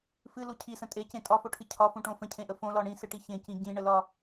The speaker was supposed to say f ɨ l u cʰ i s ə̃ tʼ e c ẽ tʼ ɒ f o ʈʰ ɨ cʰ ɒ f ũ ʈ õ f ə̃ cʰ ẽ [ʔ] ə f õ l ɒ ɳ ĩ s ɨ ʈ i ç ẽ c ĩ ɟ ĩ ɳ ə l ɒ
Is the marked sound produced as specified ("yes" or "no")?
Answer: yes